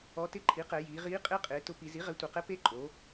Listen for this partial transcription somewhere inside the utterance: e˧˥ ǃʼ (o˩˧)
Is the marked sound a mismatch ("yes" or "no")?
no